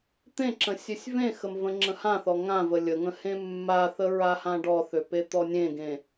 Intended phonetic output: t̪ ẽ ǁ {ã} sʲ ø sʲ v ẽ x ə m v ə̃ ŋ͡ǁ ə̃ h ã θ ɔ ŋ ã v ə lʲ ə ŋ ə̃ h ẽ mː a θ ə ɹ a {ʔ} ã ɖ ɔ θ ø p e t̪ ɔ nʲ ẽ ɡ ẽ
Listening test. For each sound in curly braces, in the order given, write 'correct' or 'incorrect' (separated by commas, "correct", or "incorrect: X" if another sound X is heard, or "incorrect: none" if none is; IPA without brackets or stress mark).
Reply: incorrect: ə̃, incorrect: h